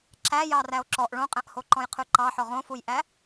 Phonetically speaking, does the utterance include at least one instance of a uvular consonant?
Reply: yes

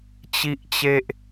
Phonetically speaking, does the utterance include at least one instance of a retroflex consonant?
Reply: no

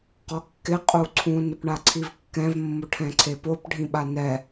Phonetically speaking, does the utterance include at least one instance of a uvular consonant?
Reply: yes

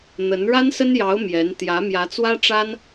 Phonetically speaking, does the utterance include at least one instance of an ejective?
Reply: no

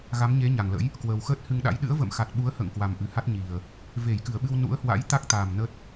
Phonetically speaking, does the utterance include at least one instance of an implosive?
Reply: yes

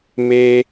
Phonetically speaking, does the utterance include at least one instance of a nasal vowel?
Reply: no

